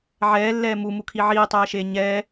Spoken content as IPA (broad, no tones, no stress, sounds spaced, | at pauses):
ʕ ɛː lː ɛː m u m u kʰ i ʕ iː tˤ ɛː ʃ eː ɲ ɛː